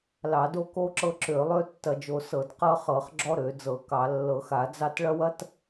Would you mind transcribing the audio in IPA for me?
l ɑ˧˩˧ d o˦ k o˦ ǁ ɤ˦ ǁ ø˧˩˧ lˠ ø˦ tː ɐ˧˩˧ d͡ʒ o˧˩˧ s ɤ˧˩˧ d q ɤ˦ χ ɤ˧˩˧ χ ɡ͡ǁ ɔ˦ ɾ ø˧˩˧ d͡z ɤ˧˩˧ k ɑ˧˩˧ lː ɤ˧˩˧ x a˧˩˧ d͡z ɑ˦ t ɭ ɐ˦ w ɐ˦ t

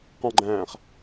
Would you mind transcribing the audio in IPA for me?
q ɔ̃ ɡ͡ǃ æ̃ː χ

